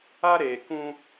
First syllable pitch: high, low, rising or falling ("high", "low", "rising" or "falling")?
high